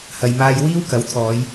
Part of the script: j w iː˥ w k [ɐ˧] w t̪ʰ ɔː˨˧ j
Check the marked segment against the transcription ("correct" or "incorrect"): incorrect